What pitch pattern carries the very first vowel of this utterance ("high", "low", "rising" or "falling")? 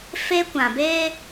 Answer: high